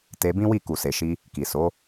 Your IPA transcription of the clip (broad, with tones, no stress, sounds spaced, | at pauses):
t e˧ b ĩ˦ w i˦˨ k u˨ s e˨ ʃ i˧ | k i˨ s o˨˦